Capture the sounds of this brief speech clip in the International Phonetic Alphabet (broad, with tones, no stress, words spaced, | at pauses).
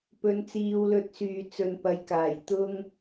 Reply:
pɵ˨˧nt͡siː˧w lɵ˧t̚syː˨ t͡sɵ˨npɐ˨˧jkaː˨˩j t̪ʊ˥ŋ